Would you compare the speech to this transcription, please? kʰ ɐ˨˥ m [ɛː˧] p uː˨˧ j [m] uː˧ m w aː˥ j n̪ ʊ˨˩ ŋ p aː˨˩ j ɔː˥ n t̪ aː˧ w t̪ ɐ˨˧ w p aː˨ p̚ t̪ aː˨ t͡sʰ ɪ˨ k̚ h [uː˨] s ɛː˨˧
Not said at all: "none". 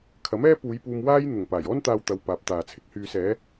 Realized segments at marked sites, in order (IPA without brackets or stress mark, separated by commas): ɛː˥, p, yː˨